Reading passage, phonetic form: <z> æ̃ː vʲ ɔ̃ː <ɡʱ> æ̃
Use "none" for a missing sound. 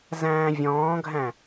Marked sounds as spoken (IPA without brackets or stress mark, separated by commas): z, ɡʱ